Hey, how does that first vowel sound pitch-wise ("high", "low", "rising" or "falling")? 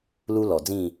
high